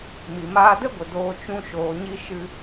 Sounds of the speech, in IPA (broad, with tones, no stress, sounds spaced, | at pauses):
m i˨ m aː˧ d ə˦ ɡʷ ə˨ d oː˧ t͡ʃ ũ˧ ʃ oː˨ ɲ i˧ ʃ ɨ˧